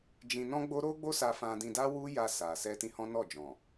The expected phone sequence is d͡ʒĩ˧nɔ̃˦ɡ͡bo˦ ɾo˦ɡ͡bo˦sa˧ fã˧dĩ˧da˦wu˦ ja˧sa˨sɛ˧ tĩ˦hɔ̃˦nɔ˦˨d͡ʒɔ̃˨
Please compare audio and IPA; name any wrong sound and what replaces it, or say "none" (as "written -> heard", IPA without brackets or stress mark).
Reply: none